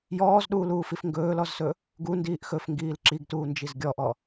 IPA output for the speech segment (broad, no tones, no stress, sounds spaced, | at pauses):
j ɔː z ɗ uː l uː f i f ŋ ɡ ɵː l ɔ z s ɵ | ɡ u n d iː ʔ x ɵ f ŋ ɡ iː l ǁ i ɡ t uː n d͡ʒ i z ɡʲ ɔ ʔ ɔ